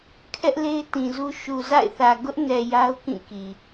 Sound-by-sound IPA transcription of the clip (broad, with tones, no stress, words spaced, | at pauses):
kʰɛ˦ʔle˦ɪ̯tĩ˨zu˦ ʃu˨za̰˦˨ɪ̯θä˨ ɡʊ˦ʔnɛ˨ ja˦ʊ̯kĩ˦˨ki˨